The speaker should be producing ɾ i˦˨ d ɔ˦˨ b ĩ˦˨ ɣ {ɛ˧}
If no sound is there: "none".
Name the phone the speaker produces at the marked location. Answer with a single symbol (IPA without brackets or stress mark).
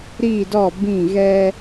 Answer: ɛ˧